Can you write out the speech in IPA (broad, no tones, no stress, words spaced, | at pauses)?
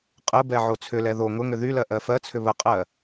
qʼəbɛ ʕot͡sʰʏlɛ ðo ŋʊŋʏ ðylɜ ʔɜfɜt͡sʰʏ βəqʼɜ